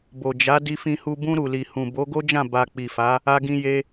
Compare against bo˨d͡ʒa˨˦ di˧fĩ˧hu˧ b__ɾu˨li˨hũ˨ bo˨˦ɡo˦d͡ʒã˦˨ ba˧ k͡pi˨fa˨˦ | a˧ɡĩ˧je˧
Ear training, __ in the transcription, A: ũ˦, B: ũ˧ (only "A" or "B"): B